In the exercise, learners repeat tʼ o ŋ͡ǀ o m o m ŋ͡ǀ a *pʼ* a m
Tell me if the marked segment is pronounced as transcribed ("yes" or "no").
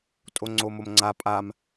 yes